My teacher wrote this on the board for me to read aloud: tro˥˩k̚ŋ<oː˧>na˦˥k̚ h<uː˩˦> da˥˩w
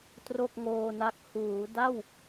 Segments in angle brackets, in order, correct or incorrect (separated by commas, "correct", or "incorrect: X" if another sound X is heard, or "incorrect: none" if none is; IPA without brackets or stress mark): correct, correct